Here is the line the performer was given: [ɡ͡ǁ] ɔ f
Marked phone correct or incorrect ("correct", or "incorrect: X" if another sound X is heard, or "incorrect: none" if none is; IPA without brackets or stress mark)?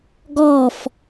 incorrect: ɡ